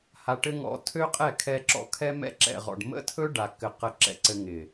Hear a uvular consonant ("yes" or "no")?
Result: yes